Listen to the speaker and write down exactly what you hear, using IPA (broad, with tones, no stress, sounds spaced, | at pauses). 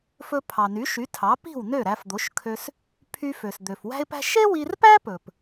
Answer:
f ɵ˧ pʰ ɑ˩ n y˩˥ ʃ y˩˥ tʰ ɑ˩˥ p i̤˥˩ w n ø˥˩ ɾ æ˧ f d̪ o˩˥ ʃ kʰ ø˧ s | pʰ y˧ f ø˩ s d̪ ø˩ f w æ̤˥ ɪ̯ p æ̤˥ ʃ e˥ w i˧ r p æ˥ p ɵ˩ p